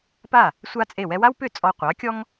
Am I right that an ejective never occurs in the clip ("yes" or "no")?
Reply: no